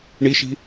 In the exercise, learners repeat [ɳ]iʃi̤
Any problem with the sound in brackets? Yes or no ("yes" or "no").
no